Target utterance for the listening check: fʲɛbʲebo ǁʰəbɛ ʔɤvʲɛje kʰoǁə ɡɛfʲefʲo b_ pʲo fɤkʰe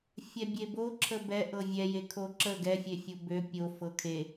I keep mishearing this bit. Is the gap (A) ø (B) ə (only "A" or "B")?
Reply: A